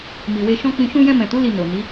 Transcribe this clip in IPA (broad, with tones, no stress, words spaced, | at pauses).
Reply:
mi˨we˧ʃɔ̃˦k͡pĩ˧ ʃũ˧jɛ̃˧mɛ̃˨tu˨˦ li˧no˨ni˨˦